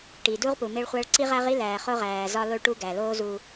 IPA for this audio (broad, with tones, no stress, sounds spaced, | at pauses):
ʈ i˨ d u˦ ʁ p u˨ m e˦ ɭ χʷ æ˦ ɭ ǀ i˦ ʁ æ˦ ʁ i˦ l æː˨ χ o˦ ʁ æː˨ z ɒ˦ l o˦ ɭ ʈ u˦ ɡ æ˨ l oː˦ z u˦